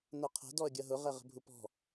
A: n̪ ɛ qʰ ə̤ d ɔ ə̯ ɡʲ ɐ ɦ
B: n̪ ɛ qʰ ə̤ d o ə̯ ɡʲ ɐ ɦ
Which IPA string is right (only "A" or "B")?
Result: A